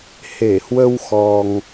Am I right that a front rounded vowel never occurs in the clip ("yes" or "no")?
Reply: yes